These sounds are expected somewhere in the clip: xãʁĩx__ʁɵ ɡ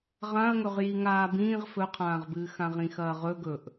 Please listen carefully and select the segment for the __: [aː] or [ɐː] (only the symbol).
ɐː